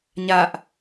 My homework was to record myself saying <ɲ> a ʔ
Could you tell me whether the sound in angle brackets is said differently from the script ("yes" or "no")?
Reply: no